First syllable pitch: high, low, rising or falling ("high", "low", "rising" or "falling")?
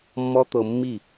high